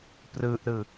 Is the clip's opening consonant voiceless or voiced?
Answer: voiceless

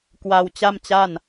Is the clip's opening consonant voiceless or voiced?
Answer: voiceless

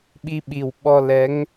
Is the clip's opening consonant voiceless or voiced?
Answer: voiced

